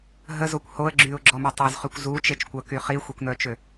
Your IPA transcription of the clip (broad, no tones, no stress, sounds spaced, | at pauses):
ɦ ə z o kʷ h o ə̯ ɡ͡ǁ y ʊ̯ ɡ͡ǁ ɔ m œ tˤ ø z χ y kʷ z u t͡ʃ e t͡ʃ kʷ œ k y χ i xʷ i kʷ n œ t͡ʃ ø